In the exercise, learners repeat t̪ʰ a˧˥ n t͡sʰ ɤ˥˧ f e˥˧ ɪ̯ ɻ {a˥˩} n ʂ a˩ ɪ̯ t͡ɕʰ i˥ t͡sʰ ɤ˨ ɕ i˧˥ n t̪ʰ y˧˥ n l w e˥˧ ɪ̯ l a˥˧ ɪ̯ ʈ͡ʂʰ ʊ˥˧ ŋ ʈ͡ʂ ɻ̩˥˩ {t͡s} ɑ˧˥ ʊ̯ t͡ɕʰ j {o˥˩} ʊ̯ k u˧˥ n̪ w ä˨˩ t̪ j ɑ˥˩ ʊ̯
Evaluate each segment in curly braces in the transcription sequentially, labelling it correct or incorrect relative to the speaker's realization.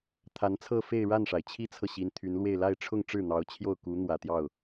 correct, incorrect: n̪, correct

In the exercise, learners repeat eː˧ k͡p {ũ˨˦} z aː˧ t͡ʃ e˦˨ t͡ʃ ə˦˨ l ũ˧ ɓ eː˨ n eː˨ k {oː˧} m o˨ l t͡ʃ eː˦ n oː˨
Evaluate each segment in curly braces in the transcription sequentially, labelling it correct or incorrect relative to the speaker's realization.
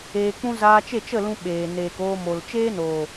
incorrect: ũ˦, correct

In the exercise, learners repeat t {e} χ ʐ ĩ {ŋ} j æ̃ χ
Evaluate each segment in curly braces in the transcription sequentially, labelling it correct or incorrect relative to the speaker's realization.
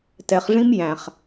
incorrect: ɛ, incorrect: m

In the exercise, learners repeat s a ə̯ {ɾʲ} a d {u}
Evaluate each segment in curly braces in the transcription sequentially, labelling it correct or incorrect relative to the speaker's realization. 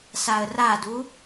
incorrect: r, correct

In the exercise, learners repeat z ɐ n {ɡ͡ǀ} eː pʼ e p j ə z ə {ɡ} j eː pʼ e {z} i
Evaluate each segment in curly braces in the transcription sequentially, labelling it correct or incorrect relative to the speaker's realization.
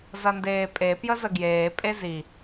incorrect: d, correct, correct

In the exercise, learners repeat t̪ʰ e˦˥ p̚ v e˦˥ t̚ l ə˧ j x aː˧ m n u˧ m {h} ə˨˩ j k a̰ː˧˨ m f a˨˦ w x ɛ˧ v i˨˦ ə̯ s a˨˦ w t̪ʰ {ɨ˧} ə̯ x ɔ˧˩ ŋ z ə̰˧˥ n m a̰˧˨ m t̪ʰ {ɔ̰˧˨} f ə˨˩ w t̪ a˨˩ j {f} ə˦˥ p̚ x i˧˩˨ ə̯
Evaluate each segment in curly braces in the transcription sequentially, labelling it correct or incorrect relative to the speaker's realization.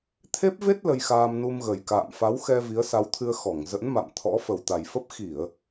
incorrect: ɣ, correct, incorrect: ɔ̰˧˥, correct

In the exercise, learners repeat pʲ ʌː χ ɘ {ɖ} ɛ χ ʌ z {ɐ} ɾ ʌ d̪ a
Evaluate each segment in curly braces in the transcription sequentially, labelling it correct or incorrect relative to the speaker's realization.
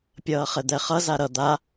incorrect: d̪, incorrect: a

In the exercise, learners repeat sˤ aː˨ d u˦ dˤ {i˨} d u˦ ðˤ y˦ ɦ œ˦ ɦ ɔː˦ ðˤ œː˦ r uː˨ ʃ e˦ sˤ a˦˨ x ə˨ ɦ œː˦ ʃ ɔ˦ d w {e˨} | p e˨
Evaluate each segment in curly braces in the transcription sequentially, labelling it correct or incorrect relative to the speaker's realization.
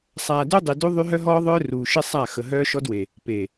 correct, correct

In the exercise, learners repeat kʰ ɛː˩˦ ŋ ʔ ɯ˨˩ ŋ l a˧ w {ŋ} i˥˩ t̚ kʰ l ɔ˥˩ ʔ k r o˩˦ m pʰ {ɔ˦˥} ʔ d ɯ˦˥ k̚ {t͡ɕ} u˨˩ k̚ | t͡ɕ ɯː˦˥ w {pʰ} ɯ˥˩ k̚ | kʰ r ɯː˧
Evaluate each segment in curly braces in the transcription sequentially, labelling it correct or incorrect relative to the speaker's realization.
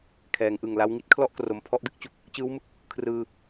correct, correct, correct, incorrect: m

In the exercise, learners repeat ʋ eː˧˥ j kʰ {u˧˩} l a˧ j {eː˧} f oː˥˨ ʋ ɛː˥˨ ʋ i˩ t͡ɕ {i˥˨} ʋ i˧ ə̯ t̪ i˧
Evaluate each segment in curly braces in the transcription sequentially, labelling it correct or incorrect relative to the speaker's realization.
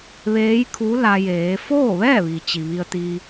incorrect: u˧˥, incorrect: eː˩˧, incorrect: i˩

